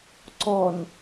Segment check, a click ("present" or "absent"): present